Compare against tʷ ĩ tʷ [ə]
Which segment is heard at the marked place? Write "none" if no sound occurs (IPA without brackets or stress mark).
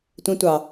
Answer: ɑ